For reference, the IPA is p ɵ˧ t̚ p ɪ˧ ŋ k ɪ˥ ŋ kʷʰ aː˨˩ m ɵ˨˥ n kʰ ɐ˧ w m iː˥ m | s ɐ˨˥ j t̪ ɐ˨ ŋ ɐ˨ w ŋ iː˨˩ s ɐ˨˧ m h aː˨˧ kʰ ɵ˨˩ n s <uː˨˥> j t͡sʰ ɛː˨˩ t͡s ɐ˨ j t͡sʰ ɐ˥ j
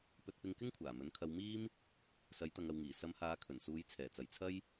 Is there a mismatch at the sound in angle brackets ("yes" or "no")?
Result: yes